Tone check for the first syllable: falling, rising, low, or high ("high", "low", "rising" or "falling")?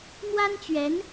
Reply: high